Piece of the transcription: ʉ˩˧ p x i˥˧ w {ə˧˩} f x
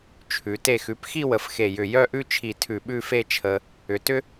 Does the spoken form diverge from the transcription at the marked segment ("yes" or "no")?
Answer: no